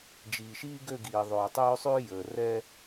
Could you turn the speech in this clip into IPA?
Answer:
d͡ʒiː˨ʃiː˦ɡø˦˨ɡiː˨ ðˤøː˨tˤøː˦sˤʉː˦ jəː˨ rɛ˦

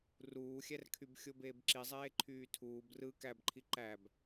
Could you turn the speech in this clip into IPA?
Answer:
ruːxʲærkʰyb xʲobeːbǁizˤeː ǃʰyːtʰuːb rɯ kæbǃʰi ǃæb

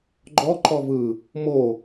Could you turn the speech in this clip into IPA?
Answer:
ɡ͡ǃɔ ǃɔvɯ | mo

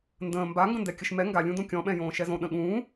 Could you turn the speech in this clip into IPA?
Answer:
ndə̃ː mbaŋɡə̃ndɛ kʲəʃmɛ ŋɡalʲũdõ kʲɔ̃ɓɛ̃jõː ʃɛzõ ɗə̃ɠũː

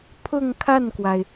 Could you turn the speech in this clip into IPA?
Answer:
pʰʊ˥˧ŋkʰa˥˩nkwa˩ɪ̯

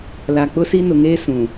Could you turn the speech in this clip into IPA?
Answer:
la˨k͡pʊ˦si˦ nʊ˨ŋeː˦ sũ˨

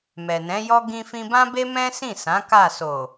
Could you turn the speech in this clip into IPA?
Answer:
mɛ˨nɛ̃˨˦jɔ˦ ɡĩ˧fĩ˧bã˦be˦ mɛ̃˦sĩ˦˨sã˨˦ ka˦˨ so˨

